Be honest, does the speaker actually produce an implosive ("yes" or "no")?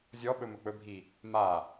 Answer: yes